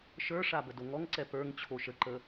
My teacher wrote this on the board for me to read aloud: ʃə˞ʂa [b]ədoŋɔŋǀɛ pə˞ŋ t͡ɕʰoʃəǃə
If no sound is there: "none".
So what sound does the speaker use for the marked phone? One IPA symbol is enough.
b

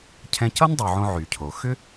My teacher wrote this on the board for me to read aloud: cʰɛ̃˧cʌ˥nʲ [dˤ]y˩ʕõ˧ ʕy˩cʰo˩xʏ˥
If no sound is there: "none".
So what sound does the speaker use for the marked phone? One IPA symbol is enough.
dˤ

